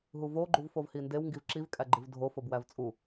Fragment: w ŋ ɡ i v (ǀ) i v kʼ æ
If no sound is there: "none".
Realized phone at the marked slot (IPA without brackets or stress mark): ǁ